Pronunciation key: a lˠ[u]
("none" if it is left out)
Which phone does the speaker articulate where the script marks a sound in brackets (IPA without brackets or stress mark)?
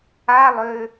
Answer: ø